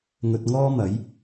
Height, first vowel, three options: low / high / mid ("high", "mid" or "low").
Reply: mid